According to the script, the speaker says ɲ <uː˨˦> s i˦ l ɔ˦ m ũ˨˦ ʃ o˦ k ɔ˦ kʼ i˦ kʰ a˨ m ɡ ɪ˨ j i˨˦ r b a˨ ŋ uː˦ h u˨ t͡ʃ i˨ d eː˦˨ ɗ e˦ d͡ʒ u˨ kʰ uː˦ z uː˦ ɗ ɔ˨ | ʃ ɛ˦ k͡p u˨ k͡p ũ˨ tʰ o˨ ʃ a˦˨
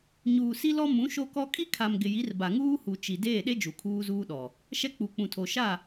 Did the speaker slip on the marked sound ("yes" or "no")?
yes